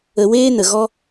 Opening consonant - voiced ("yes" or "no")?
yes